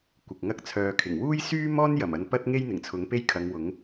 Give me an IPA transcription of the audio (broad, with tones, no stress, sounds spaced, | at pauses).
kʷ ɪ˨ k̚ ŋ ɐ˥ k̚ t͡sʰ œː˧ kʰ ɪ˨˩ ŋ w uː˥ j s yː˥ m ɔː˥ n j ɐ˨˩ m ɐ˧ n p ɐ˥ t̚ ŋ e˥ j n̪ ɪ˨˩ ŋ t͡sʰ ʊ˨˥ ŋ p e˥ j kʰ ɐ˨˧ ŋ w ʊ˨˥ ŋ